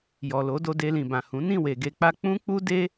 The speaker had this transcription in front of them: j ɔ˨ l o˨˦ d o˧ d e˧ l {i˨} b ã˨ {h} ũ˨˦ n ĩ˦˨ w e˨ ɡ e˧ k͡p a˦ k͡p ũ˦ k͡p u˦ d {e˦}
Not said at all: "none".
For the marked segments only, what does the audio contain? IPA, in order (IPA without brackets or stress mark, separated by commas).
ĩ˨, h, e˦